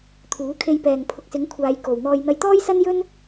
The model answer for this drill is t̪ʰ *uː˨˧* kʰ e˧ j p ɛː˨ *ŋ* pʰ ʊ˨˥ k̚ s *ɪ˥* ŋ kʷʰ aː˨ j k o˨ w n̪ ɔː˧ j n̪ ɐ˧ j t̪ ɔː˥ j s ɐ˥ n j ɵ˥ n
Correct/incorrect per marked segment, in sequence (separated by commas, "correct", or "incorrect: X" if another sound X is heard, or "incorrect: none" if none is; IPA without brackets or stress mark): incorrect: uː˨˥, correct, incorrect: ɪ˨˥